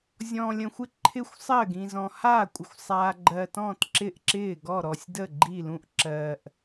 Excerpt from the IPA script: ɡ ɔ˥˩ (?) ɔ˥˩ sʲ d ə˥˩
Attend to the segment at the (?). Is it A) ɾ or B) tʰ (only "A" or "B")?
A